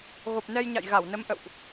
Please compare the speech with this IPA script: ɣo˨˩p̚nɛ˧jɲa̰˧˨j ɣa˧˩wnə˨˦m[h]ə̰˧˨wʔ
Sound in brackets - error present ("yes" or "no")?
yes